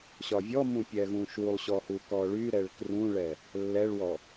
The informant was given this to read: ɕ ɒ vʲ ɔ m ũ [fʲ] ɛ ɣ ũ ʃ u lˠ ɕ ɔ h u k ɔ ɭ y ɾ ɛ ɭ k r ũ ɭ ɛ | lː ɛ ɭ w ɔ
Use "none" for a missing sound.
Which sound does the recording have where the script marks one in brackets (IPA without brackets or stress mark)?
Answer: pʲ